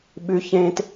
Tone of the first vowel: high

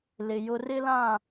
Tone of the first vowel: low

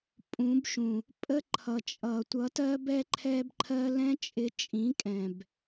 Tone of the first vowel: rising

